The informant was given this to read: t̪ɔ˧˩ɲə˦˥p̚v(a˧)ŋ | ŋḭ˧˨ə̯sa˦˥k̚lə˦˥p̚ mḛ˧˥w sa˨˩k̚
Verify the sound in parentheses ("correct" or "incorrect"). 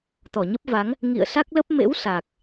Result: incorrect